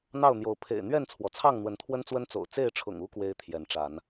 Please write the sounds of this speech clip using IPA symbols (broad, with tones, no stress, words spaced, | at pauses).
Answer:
n̪ɑ˥˨ʊ̯n̪jo˨˦ʊ̯ pʰḛ˨˩ɪ̯ n̪ɥɛ˥˨nt͡sʰwɔ˩t͡sʰɑ˥˨ŋ n̪wə˨˦nt̪ʰwə˦nt͡swə˦nt͡so̰˨˩ʊ̯ t͡se˥˨ɪ̯ʈ͡ʂʰʊ̰˨˩ŋu˦ kwe˦ɪ̯t̪ʰjɛ˨˦nʈ͡ʂa˨˦n